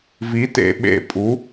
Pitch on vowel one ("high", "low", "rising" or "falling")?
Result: rising